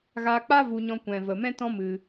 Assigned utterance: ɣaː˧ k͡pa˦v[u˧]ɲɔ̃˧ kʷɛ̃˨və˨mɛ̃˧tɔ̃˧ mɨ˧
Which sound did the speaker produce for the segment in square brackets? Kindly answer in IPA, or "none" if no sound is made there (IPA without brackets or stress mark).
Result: u˧